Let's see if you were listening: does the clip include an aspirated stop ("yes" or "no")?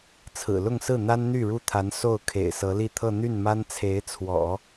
yes